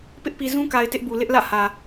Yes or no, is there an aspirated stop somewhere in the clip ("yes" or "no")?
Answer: no